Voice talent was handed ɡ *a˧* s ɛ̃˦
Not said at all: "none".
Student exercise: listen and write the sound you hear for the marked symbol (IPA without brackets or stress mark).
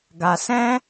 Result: a˧